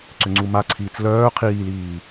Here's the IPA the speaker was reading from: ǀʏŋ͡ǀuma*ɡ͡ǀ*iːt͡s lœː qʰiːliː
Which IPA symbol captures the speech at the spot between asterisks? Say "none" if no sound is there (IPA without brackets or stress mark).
ǀʰ